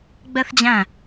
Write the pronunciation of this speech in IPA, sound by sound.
ɡ͡b ɛ θ d͡ʑ æ̃

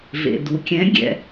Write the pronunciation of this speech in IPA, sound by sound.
v ḛ˩ d u˩ kʲ ɛ̃˧˥ ɡʲ ɛ̰˩˧

